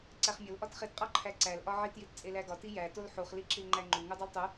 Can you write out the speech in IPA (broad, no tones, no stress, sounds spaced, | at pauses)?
ǀ æ χ mʲ o l ʔ ɒ t χ e t qʼ ɒ ǃʰ æ ǀ æ l ʔ ɒ ʕ i t j i t t͡sʼ e l æ ɡ ɒ t i j æ t o l ħ u χ l i ǁ i l ŋ͡ǃ æ ŋ͡ǃ u ŋ u dˤ u l tˤ u